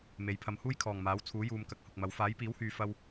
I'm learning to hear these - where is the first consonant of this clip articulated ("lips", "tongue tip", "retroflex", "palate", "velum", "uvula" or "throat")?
lips